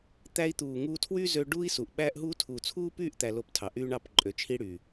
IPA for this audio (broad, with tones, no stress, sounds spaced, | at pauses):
t̪ æ˧ i̯ t̪ uː˨ ŋ uː˧ tʰ w y˦ z ø˧ ɖ uː˦ i̯ s u˨ ʔ ɓ æ˦ ʔ ɦ u˦ tʰ uː˨ t͡sʰ uː˦ p yː˦˨ ʔ t̪ æ˨ l o˧ p tʰ ɑ˨ ʔ yː˦ ɳ ɑ˦˨ p ǃʼ ø˨ t͡ʃʰ i˧ ɽ yː˨